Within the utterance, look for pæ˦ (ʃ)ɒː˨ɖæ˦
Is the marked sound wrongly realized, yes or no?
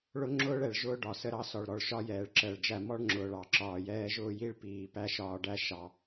no